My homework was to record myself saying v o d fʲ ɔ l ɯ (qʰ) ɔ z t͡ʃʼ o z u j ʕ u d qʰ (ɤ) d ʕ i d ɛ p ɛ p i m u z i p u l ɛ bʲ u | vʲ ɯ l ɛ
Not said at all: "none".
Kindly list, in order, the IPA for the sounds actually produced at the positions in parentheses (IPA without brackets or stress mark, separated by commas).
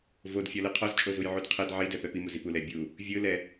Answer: qʰ, ɤ